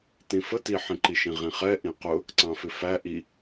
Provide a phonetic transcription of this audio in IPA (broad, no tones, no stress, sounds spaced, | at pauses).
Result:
t ĩ f ə t i ħ ĩ ǃ i ʃ ĩ ʁ ĩ χ ɛ ʔ ĩ q ʊ | ǀ ɑ̃ f ɪ f æ ʔ i